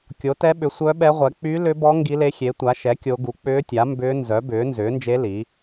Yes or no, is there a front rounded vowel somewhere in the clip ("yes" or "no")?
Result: yes